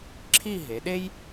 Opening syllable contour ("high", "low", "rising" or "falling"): falling